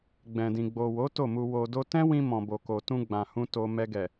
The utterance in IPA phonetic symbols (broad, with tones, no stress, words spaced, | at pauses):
ɡ͡bɛ̃˨dĩ˨ ɡ͡bo˨wo˨˦ to˦˨mu˧ wo˧ do˦ tɛ̃˦wĩ˧ mɔ̃˨bo˨ko˨ tũ˧ ɡ͡bã˨hũ˧ to˧ mɛ˧ɡɛ˨